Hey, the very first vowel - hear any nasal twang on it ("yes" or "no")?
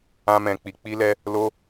yes